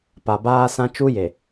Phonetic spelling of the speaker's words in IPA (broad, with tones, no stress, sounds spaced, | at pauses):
p a˨ b aː˦ s ã˦ t͡ʃ u˦ j e˨